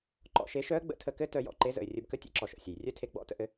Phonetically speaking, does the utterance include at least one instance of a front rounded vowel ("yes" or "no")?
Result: yes